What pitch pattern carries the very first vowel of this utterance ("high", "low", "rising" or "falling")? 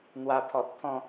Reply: high